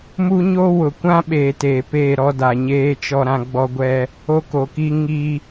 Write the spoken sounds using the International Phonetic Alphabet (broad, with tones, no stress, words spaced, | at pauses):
mu˦ɲo˦ wʊ˨kʷã˦ɓeː˨ teː˨peː˦˨ ɾɔ˦da˨ɲeː˦ t͡ʃɔ˦ɾã˦ɡ͡bɔ˦ɡʷɛ˦ | o˦ ko˨ki˦ ŋi˦